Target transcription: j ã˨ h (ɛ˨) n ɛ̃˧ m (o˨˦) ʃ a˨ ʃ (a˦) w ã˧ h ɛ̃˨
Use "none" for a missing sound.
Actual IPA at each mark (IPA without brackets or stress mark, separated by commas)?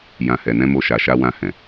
ɛ˨, o˧, a˧